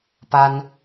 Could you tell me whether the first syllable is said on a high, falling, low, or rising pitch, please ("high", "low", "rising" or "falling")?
high